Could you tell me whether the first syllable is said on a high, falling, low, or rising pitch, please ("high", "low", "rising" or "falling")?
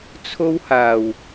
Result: high